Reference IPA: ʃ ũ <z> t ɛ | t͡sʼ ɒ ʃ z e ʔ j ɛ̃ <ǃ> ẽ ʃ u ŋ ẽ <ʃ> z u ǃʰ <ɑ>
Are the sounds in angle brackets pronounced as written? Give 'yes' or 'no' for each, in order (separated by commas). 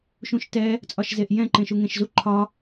no, yes, yes, no